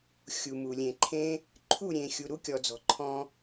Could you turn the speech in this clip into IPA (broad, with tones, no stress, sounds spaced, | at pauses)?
xʲ u˨ m u˨ lʲ ẽ˨ ǃʰ ẽ˦ | ǃʰ u˦˨ ɾʲ ẽ˨ xʲ u˨ ɾ u˦ kʲ ɔ˨ d͡z ɔ̤˨ ǃʰ ɔ̃˧